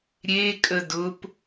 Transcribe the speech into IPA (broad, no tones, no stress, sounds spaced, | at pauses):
ɾʲ e kʼ ə d ʊ p